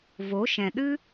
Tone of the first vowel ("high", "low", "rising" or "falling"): rising